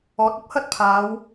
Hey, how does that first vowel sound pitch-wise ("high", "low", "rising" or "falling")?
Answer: rising